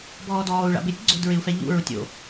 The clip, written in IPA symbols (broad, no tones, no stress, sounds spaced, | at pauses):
b ɔː d ɔː u̯ ɭ a̰ b ɪ tʲ ɡ͡ǀ o̤ d ɹ ɪ u̯ f ɛ ʎ ṵ ɹ ʊ tʲ o̰